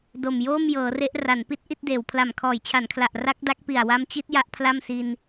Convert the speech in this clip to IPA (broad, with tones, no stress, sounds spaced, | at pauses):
d o˨˩ m j oː˥˩ m j ɤː˩˦ r e˦˥ ʔ r a˩˦ n p i˦˥ t̚ ʔ i˥˩ t̚ d eː˩˦ w pʰ l a˨˩ m kʰ ɔː˩˦ j t͡ɕʰ a˩˦ n kʰ l a˨˩ ʔ r a˦˥ k̚ d a˦˥ k̚ p i˨˩ a̯ w a˦˥ m t͡ɕ i˦˥ t̚ j a˦˥ ʔ pʰ l a˥˩ m s i˧ n